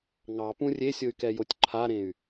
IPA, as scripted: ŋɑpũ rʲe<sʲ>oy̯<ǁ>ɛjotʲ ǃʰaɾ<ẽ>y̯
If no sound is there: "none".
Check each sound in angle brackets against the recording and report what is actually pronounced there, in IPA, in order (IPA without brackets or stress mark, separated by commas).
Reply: sʲ, k, ẽ